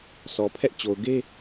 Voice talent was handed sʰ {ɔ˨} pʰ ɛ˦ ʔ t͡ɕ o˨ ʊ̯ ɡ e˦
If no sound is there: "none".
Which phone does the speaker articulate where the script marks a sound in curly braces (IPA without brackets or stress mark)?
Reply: ɔ˨